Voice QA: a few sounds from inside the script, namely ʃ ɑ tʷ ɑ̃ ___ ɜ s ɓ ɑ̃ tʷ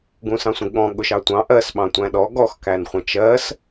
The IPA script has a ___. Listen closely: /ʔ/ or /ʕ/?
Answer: ʔ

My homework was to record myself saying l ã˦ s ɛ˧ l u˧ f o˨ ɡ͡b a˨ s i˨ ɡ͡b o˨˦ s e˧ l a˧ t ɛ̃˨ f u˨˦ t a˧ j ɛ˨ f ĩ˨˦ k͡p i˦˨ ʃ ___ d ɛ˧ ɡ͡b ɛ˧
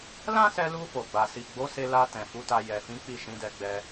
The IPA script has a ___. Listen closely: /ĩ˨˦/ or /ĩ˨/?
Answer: ĩ˨˦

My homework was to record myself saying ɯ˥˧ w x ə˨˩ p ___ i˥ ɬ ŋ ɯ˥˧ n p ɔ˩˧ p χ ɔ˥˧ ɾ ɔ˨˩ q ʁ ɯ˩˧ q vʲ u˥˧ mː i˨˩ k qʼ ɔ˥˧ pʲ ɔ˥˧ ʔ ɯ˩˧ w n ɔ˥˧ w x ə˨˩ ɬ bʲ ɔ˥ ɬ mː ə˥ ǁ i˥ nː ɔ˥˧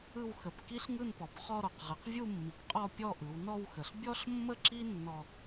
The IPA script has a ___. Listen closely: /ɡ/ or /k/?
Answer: k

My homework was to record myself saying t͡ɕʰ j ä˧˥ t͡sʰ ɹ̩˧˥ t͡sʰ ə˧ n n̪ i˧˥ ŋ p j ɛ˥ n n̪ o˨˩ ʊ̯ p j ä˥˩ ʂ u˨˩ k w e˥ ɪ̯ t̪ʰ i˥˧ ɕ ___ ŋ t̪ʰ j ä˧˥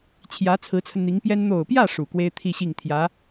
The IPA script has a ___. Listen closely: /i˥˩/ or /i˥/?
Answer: i˥˩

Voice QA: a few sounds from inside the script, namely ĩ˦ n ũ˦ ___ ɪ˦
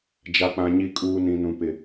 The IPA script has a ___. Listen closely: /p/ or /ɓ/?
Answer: p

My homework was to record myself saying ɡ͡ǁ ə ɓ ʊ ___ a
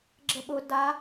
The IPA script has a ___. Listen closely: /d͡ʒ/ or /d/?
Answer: d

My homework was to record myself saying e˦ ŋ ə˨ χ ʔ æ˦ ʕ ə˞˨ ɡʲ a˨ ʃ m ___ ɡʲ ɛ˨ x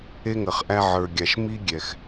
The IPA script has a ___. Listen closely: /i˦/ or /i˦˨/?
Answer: i˦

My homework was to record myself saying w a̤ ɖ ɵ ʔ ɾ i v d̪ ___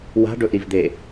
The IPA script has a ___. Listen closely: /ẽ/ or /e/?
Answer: e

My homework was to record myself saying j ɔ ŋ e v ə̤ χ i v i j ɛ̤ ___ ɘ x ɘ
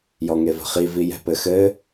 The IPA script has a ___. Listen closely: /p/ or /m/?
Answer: p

